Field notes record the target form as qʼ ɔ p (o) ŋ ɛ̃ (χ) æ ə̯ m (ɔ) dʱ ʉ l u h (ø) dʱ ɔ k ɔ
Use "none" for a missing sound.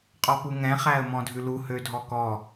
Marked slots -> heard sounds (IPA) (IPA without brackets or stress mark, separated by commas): u, χ, ɔ̃, ø